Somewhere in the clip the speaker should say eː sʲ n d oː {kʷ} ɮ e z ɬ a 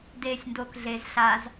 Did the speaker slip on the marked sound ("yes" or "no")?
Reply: yes